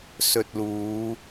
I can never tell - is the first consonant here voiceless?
yes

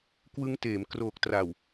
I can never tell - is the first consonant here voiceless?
yes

